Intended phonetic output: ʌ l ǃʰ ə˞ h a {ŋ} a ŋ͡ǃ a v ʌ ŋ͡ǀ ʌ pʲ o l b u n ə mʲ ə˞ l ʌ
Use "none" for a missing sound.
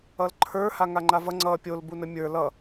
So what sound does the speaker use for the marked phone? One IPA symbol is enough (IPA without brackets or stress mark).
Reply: ŋ